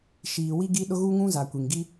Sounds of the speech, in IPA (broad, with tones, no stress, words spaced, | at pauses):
ʃiː˨wi˦ɡi˦ ɗʊ˦ɣu˦ŋũ˦ za˨kʷi˨ŋ ɡi˦